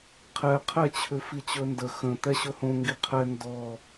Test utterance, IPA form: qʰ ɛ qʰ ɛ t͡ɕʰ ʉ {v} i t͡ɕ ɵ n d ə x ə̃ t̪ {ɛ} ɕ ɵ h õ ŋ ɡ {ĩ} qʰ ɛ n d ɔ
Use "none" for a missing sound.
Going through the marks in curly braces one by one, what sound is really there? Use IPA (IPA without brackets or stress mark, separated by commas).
f, ɛ, i